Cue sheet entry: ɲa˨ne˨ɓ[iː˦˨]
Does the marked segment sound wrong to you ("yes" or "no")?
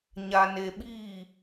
no